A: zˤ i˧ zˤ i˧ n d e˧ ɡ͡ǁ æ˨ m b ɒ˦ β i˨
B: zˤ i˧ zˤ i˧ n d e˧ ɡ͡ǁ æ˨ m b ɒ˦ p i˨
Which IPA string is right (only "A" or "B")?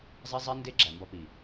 B